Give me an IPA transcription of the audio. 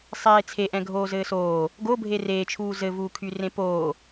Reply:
sˤ eː t͡sʰ e ʔ ɛ̃ ɡʱ oː z ɘː s oː | ɡ o bʱ e r eː t͡ʃʰ uː z ɘ v uː kʰ y r ẽ p oː

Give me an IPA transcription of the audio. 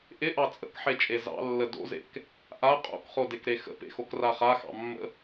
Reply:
ʔ ɪ ʔ ɑ t͡sʼ ə̰ k ħ e t͡ʃʼ e z ɑ̰ lː ə d o̰ z ḛ k | ʔ a qʼ o̰ k χ o d e k ɾ e x ə̰ p ḛ x o k r a χ a x ɑ̰ mː ə̰

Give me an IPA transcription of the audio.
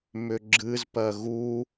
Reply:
m ʏ ɡ͡ǁ ɨ z p ɜ ɣ u

